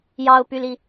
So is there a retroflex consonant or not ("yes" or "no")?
no